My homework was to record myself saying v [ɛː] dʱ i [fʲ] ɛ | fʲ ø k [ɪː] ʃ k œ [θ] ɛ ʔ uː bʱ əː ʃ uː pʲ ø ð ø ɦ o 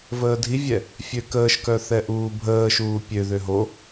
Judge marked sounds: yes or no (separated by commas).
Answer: no, no, no, yes